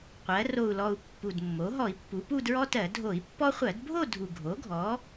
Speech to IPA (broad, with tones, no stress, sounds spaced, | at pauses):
qʷ ɜ˩˧ r o˨˩ u̯ l ɔ˨˩ u̯ pː u˨˩ d mː o˩˥ ɦ ɔ˧˩˧ i̯ pː u˩˧ p u˥˧ d ɹ ɔ˥ t ɜ˧˩˧ dʱ o˧˩˧ i̯ pː ɔ˥ χʷ ɜ˧˩˧ d bʱ o˥˧ dʱ u˨˩ ɡʱ o˩˥ ɡʱ ɔ˩˥